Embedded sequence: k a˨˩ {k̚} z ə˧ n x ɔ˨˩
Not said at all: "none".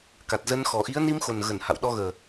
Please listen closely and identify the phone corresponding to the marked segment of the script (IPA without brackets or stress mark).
t̚